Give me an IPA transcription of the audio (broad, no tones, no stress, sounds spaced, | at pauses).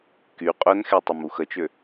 k y qʼ œ n x e tˤ e m u x ə t͡ʃ ø